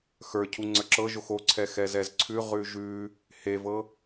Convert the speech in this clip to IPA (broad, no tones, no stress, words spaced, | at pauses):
xə˞ cʰuŋ͡ǀə˞ǁɤʒox oǀʰɛ xɛzɛzǀʰʉʁʉ ʒʉ | hevɤ